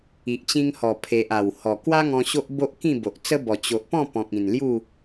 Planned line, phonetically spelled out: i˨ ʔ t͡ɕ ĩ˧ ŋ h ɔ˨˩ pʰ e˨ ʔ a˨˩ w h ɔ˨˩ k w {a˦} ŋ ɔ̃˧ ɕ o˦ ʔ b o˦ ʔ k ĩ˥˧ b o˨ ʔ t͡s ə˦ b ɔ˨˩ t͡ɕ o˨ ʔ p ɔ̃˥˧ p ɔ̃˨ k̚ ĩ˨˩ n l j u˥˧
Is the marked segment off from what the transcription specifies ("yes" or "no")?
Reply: no